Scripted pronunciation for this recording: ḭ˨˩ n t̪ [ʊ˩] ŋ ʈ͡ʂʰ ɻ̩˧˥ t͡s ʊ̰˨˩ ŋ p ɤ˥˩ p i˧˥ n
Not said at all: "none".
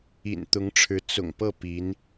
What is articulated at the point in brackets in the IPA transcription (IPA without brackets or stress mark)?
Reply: ʊ˧˥